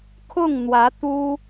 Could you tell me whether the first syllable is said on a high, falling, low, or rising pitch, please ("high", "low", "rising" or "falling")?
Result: falling